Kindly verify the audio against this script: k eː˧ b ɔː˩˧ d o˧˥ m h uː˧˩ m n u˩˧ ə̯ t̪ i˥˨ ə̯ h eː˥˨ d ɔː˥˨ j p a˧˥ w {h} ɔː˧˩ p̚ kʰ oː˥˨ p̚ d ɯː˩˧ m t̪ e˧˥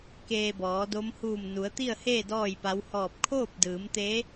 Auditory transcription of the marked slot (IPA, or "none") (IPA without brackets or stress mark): h